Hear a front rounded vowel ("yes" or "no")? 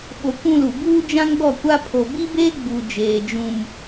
no